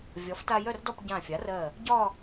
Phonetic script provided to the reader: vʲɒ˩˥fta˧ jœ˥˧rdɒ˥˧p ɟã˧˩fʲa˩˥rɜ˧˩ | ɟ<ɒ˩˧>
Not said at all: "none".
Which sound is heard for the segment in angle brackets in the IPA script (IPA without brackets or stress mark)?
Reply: ɒ˥˧